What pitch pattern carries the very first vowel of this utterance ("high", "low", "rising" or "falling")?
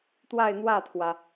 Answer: falling